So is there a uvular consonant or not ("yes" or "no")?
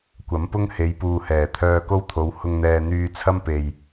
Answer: no